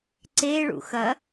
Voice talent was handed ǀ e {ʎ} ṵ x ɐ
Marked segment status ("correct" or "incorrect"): incorrect